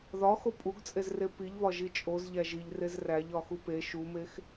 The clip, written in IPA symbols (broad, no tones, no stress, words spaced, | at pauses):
ðɒ xopʼuɡt͡sʼezre piʎβɒ ʒit͡ʃʼoz ʎæʒiʎ rezræʎ ɒxupe ʃumex